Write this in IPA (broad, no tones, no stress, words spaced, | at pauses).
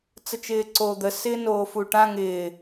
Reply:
t͡sət͡ʃɪːǀoːd̪ə sɪːnoːfuʈã ŋɪː